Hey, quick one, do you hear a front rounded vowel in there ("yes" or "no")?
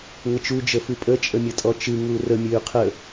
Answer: yes